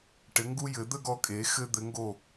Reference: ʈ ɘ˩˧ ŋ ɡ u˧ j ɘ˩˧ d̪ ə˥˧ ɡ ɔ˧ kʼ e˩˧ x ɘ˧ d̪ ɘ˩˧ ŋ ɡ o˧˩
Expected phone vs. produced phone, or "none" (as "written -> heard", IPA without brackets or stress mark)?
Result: none